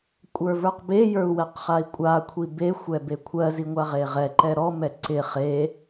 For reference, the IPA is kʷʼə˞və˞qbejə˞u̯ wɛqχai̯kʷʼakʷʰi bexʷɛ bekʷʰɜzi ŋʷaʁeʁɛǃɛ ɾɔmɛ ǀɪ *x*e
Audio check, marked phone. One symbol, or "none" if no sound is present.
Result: χ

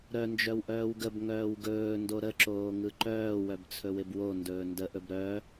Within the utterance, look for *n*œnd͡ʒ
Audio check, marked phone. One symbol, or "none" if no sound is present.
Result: ɾ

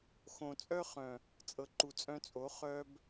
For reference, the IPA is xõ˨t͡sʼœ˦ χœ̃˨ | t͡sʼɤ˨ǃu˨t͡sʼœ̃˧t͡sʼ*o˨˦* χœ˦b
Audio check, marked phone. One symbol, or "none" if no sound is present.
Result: o˨˦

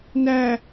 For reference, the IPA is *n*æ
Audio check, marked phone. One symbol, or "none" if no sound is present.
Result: n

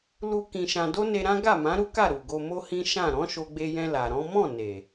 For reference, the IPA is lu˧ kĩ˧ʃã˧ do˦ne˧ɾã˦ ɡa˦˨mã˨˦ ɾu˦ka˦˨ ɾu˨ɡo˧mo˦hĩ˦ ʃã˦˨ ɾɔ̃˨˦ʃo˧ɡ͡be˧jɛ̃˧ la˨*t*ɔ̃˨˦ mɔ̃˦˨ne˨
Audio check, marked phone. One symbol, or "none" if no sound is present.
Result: ɾ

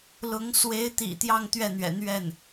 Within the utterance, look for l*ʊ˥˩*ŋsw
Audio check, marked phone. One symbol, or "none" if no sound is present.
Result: ʊ˧˥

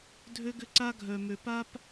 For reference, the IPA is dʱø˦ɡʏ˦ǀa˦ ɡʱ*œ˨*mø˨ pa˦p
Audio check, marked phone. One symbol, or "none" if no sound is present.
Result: œ˨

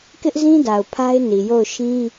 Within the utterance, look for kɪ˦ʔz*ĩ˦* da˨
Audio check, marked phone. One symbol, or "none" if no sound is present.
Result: ĩ˦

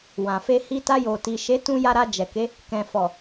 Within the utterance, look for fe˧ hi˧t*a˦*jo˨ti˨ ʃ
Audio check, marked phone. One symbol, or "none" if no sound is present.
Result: a˧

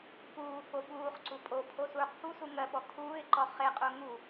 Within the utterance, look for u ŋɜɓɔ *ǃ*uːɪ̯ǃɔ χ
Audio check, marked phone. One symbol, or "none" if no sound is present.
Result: kʰ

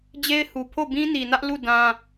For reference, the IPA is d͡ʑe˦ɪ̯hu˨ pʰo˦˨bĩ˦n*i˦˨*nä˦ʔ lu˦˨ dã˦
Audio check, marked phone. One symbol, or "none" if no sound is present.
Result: i˨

